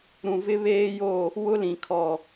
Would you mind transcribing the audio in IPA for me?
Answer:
ɾ ũ˨ v ɪ˦ β eː˦ j o˦˨ | w ʊ˦ l ĩ˨ kʰ ɔ˨

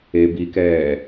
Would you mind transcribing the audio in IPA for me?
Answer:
e b i k ɛː

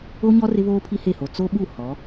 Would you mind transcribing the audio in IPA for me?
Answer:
o˦ ɲ ɔ˦ r ɪ˦ β oː˦ pʰ i˦ h e˦˨ h o˨ t͡s o˦ ɓ u˦˨ h ɔ˨˦

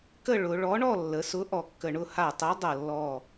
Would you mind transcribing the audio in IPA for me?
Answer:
k ə˥˧ ɭ ʊ˩˧ ɭ ɔ˨˥ ɳ ɔ˥˧ lː ə˩˧ s ʊ˨˥ ʔ ɔ˧˩ kː ə˧˩ ɳ ʊ˥˧ h a˧˩ tˤ ɤ˨˥ dˤ ɤ˧˩ lː ɔ˧˩

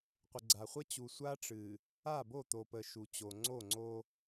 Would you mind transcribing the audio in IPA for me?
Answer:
qʷ ə˨ ɡ͡ǀ a˨ χʷ ə˦ t͡ɕ u˨ sʷ a˦ ʈ͡ʂ ɨ˨ | a˦˨ b o˦˨ t̪ o˨ p ə˨ ʃ u˨ t͡ɕ o˨ ŋ͡ǀ o˦˨ ŋ͡ǀ o˦

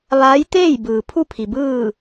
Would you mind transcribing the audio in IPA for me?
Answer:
ʋ aː˧˥ j t̪ eː˥˨ j b ɯː˩ pʰ u˥˨ pʰ i˩ b ɯː˥˨

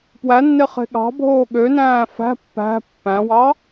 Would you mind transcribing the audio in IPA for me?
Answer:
p w æ nː e χ e̤ ɠ ɑ̤ bʱ oː ɠ ø n æ̃ː f æ̤ pː æ̤ pː æ̃ w ɑ

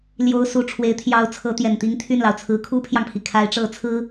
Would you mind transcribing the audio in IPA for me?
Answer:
l j o˥ ʊ̯ s u˥˩ ʈ͡ʂʰ w e˧˥ ɪ̯ t̪ʰ j ɑ˧˥ ʊ̯ t͡sʰ ɤ˧˥ t̪ j ɛ˨˩ n t̪ i˥ ŋ t̪ʰ y˥˩ n l ɑ˩ ʊ̯ t͡sʰ ɹ̩˧˥ kʰ u˥ pʰ j ɑ˨ ŋ pʰ i˩ kʰ a˧˥ ɪ̯ ʈ͡ʂ ɤ˧˥ t͡sʰ ɹ̩˥

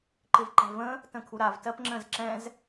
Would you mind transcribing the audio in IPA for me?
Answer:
ǃ ɪ v ǃ ɛ̤ v ə̃ | t ə̃ kʰ u ɾ a v t ɜ p ŋ͡ǁ ə̃ z ǁ ɛ̃ z

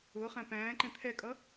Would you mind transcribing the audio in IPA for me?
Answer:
ʊː χ æ̃ p æ̃ː ǃ ɛ̃ t̪ʰ ɛ kʼ ʌ

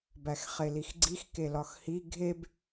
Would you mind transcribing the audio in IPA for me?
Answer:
b æ x χ e l i x ɡ͡ǀ i x k e l ɒ x h i ɡʱ e b

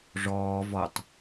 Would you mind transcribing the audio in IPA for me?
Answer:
ʐ ɔː v ɔ tˤ

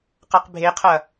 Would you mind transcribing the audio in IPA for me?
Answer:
q a q bʱ e qʰ ɐ

